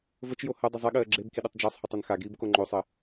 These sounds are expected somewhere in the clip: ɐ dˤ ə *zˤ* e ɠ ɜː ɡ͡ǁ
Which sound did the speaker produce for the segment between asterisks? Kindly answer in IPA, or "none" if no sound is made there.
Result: zˤ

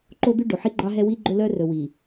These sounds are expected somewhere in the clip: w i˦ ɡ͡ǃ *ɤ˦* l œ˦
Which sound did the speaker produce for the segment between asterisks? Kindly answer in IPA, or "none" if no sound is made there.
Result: ɵ˦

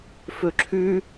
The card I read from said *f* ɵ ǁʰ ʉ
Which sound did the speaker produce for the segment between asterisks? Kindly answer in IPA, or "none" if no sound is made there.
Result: f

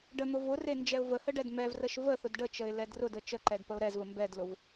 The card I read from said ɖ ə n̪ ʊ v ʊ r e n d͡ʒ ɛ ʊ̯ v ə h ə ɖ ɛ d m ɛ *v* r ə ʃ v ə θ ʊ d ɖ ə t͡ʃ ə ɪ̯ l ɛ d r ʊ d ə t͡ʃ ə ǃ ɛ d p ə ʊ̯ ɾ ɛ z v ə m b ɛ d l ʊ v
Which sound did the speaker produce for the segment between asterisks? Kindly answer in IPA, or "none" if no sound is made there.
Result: v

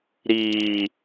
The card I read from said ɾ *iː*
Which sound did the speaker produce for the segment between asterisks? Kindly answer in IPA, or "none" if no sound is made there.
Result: iː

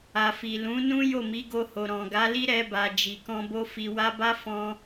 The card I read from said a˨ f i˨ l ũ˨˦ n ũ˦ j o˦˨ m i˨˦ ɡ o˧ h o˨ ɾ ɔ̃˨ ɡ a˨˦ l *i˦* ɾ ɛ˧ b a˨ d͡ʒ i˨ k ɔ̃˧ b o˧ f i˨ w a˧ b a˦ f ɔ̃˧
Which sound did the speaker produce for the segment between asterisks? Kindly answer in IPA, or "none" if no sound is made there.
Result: i˦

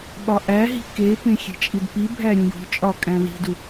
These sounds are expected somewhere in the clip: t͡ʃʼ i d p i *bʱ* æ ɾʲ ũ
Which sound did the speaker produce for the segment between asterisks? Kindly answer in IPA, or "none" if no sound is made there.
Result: bʱ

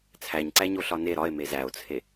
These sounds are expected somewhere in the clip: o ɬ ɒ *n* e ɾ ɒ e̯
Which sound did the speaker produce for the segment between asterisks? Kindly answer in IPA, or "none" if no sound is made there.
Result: n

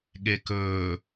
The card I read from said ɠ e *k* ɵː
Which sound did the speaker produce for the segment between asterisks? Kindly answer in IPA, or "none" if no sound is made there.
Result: k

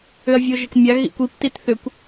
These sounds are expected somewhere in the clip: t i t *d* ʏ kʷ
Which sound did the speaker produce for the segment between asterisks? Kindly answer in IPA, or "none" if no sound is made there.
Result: θ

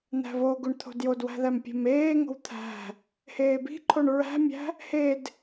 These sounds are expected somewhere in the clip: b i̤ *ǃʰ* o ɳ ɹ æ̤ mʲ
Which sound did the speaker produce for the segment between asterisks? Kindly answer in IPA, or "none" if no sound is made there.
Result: ǃʰ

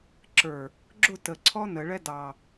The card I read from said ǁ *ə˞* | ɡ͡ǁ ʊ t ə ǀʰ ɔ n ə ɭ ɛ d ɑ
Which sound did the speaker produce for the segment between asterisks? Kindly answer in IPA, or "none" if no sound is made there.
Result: ə˞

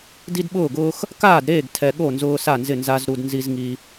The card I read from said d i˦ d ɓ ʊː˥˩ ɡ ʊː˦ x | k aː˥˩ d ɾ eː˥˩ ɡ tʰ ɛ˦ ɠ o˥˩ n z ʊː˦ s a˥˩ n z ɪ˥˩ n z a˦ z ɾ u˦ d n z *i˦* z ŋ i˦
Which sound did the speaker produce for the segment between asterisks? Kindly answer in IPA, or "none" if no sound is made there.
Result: i˦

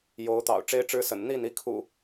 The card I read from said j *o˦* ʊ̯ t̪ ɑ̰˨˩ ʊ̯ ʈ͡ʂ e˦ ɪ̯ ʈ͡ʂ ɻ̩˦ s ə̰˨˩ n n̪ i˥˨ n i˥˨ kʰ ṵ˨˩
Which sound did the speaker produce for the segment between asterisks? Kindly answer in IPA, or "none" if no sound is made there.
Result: o˨˦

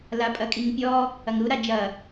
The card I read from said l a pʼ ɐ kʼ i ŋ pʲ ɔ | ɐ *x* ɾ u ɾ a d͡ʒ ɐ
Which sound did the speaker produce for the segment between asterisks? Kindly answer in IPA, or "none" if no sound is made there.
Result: ŋ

